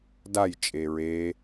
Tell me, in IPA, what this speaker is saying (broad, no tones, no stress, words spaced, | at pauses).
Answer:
daj t͡ʃʼeɹe